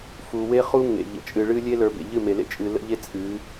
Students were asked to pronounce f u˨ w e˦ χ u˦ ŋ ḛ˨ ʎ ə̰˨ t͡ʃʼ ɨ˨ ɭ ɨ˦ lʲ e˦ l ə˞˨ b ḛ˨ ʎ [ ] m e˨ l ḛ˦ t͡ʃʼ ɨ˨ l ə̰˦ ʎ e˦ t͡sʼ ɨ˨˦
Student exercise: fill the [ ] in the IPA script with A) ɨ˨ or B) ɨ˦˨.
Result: B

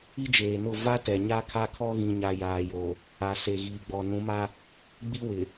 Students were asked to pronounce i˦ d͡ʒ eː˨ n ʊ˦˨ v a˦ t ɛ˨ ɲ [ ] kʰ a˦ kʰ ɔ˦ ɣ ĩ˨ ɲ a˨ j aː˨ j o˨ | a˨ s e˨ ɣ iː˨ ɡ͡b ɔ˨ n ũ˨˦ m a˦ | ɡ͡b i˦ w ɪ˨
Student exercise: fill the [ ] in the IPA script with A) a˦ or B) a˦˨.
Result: A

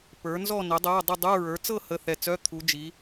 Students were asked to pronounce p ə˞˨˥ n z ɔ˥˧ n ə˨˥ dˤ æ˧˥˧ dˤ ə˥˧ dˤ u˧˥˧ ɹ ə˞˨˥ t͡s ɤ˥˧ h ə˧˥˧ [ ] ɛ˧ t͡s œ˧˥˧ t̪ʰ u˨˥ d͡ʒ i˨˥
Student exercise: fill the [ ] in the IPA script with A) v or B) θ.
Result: B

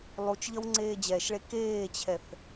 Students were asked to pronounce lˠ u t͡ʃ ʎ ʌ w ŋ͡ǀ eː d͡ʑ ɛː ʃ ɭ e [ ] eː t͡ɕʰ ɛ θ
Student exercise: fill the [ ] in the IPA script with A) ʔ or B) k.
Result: B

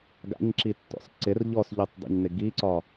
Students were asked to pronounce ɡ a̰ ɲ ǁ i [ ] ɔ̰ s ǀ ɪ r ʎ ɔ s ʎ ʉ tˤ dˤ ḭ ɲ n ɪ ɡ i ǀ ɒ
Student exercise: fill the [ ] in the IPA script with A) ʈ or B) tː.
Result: B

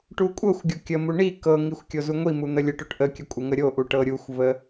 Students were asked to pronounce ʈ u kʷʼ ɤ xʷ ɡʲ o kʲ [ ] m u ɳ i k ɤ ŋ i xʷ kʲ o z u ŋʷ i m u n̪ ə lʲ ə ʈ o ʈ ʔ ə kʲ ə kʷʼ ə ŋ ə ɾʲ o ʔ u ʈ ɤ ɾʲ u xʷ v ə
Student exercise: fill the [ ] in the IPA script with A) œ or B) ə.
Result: B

